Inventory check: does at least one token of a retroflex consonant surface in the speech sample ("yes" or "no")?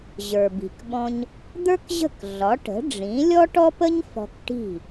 yes